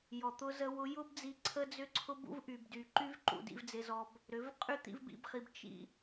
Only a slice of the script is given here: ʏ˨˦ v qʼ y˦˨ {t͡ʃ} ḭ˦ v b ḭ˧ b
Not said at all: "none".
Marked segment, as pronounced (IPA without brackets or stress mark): t̪